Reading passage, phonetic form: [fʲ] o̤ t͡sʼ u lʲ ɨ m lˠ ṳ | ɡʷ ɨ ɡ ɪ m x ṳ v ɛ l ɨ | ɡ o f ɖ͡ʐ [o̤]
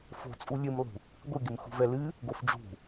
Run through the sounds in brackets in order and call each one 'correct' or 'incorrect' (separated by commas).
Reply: incorrect, incorrect